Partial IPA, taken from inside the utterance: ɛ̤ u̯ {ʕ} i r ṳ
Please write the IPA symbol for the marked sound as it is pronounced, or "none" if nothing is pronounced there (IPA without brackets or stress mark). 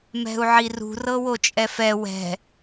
ʕ